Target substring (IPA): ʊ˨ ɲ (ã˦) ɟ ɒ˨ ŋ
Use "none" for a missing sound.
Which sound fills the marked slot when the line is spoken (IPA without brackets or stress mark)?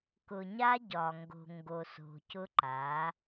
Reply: a˦